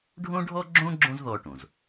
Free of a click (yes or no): no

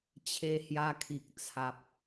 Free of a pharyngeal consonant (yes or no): yes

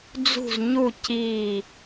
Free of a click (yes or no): yes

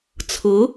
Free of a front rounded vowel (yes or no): yes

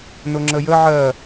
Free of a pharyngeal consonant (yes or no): no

